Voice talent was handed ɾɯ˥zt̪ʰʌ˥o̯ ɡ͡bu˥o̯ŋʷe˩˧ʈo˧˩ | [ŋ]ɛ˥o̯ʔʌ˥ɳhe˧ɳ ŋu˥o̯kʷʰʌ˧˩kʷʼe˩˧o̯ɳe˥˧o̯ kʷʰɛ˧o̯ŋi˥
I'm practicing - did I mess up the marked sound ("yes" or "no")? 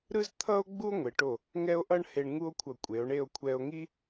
no